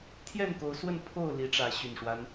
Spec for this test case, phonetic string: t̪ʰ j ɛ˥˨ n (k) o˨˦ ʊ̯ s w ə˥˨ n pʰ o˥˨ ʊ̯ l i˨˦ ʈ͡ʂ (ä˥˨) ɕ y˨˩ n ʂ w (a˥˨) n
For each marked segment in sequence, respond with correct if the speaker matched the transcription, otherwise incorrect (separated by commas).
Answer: correct, incorrect, incorrect